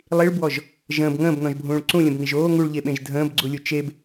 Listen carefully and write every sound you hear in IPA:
lˠ i ɭ b w ɔ ʒ | ʒ ə̃ː b ŋ ə̃ː b n ɔ̃ ʒ bʱ ũː ɭ ǀ ũ lʲ ə̃ b n i ʒ oː ŋ u ɭ ʎ e ɓ ẽ ʒ dʱ ə̃ː b ɡ͡ǀ u lʲ u t͡ʃ e b

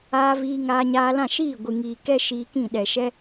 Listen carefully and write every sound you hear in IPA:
aː˦ v iː˧ ŋ aː˧ ɲ aː˧ l ã˦˨ ʃ iː˦˨ ɡʷ ɨ˨ ŋ iː˨ k ɛ˦ ʃ iː˧ k ĩ˦˨ ɗ ɛ˨ ʃ ɛ˧

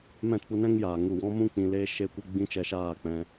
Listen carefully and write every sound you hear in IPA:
m ɛ̃˦˨ t p u˧ n ɛ̃˦ ŋ j aː˨ ŋ u˦˨ w ɔ̃˦ m ũ˦ k͡p ĩ˧ l eː˦ ʃ e˦ kʷ e˦ ɡ͡b ĩ˦ t͡ʃ ɛ˧ ʃ aː˦˨ k͡p ɛ̃˧

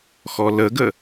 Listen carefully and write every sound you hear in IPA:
x ɔ l ə ɡ ə

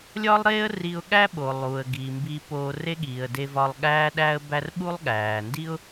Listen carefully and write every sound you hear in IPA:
lʲ ɒ˥ lˠ ɾ eː˥ ə̯ r i˧ ʊ̯ ɠ æ˥ ɓ o˩ lˠ uː˩ ə̯ ɡ iː˩ m b i˧ p oː˧ r e˥ ɠ iː˩ ə̯ d e˧ v ɒ˧ lˠ ɠ æː˥ ɗ æː˥ ə̯ b æ˥ r ɓ u˥ lˠ ɠ æː˩ n d i˥ ʊ̯

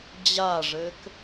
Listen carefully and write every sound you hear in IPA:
d͡ʑ a ʐ ɘ k

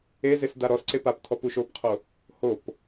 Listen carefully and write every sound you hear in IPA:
e z e s d a ɾ ɔ s ǀ e p a p tʰ ɔ p u ʃ o p qʰ o | h o p

